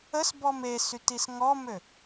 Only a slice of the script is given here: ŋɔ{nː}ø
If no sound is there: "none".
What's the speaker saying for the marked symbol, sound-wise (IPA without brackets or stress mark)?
m